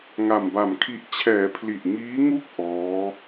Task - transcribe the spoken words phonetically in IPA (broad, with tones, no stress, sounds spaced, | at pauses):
ŋ a˨˩ m b a˨˩ m kʰ i˦˥ ʔ t͡ɕʰ ɛː˩˦ pʰ l i˨˩ ʔ ŋ iː˦˥ ŋ u˥˩ k̚ ʔ ɔː˦˥